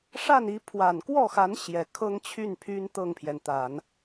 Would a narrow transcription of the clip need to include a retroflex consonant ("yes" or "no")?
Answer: yes